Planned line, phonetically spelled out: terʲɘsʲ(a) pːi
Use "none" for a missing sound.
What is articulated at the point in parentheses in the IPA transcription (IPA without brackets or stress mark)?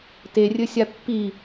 a